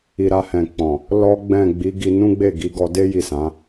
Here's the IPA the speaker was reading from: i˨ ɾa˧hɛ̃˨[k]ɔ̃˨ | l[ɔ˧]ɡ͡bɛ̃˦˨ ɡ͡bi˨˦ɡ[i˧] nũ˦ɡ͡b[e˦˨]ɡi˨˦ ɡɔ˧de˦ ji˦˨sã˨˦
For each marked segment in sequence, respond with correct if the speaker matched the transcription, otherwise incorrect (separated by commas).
incorrect, incorrect, correct, correct